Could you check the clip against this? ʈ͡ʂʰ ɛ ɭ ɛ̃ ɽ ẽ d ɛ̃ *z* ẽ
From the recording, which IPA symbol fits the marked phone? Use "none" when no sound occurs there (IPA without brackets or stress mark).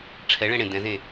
z